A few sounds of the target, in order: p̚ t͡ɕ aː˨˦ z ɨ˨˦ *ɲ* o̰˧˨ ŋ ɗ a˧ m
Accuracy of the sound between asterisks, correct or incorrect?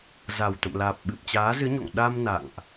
correct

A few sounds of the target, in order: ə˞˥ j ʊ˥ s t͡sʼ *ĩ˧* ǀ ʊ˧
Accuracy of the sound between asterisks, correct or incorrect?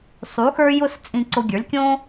correct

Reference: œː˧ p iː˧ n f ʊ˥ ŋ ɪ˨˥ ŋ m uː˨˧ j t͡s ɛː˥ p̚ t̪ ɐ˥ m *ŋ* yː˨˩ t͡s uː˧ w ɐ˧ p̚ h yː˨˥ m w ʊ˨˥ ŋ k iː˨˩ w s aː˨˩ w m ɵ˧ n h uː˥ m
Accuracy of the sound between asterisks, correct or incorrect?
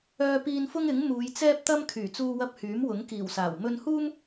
incorrect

